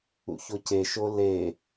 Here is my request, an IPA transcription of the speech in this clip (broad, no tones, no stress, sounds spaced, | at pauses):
ṵ ç o c e ʃ o l e